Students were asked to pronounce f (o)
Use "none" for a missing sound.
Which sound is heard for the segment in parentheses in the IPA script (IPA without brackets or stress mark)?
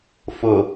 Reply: o